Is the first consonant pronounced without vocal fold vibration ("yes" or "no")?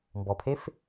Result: no